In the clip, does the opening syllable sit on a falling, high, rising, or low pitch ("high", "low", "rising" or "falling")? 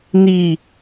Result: falling